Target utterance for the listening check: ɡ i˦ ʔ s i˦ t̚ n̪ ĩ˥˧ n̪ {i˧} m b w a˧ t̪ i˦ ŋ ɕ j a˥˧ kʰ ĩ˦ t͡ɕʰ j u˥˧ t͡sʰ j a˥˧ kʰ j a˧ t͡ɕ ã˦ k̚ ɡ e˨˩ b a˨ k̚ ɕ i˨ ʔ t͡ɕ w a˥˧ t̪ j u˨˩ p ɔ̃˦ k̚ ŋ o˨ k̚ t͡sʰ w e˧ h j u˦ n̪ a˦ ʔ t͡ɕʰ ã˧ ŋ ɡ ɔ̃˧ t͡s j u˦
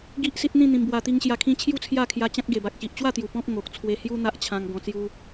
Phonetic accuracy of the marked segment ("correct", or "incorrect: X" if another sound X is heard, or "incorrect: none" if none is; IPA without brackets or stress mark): incorrect: ĩ˧